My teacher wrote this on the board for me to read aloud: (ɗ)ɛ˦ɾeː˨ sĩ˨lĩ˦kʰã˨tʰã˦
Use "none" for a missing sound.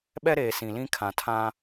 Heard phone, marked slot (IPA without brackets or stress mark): ɓ